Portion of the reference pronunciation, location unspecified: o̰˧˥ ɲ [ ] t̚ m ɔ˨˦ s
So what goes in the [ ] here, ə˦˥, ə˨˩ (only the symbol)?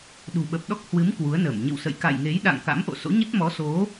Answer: ə˦˥